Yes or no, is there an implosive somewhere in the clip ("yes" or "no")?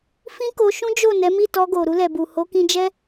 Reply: no